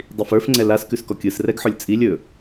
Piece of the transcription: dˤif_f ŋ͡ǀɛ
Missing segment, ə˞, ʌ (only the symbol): ə˞